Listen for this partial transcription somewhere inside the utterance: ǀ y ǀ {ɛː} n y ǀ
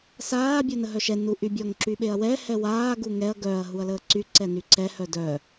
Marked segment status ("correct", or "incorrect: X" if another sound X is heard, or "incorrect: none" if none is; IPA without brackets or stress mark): incorrect: ɛ